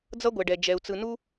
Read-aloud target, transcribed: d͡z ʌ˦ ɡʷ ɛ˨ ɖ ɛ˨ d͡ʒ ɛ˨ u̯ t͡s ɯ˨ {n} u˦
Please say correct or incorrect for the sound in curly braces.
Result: correct